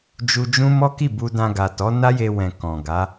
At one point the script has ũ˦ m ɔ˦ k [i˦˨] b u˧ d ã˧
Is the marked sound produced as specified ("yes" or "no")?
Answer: yes